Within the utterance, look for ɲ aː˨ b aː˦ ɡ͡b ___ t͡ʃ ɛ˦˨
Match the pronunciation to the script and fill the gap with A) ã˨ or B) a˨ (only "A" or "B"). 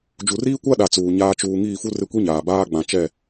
A